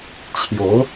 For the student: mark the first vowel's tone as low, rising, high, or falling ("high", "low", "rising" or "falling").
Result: rising